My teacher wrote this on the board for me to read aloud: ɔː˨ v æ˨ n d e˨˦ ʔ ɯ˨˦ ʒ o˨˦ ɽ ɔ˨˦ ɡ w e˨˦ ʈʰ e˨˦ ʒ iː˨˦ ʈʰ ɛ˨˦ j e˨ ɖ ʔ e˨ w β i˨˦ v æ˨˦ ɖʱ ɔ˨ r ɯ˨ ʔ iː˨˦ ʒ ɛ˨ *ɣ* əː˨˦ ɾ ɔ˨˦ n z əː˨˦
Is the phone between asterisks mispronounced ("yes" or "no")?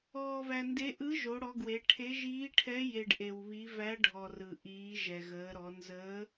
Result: no